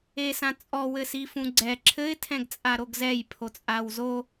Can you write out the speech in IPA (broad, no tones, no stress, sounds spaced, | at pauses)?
e s ã t͡sʼ ɔ w ɘ s i f ũ ɡ͡ǀ ɛ ǁʰ ɘ ɪ̯ tʰ ɛ̃ ɡ t͡sʼ a ɾ o ɡ z ɛ j pʰ o t͡sʼ a w z o